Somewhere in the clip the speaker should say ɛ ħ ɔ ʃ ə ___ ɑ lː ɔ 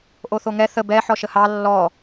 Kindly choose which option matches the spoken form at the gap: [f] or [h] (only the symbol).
h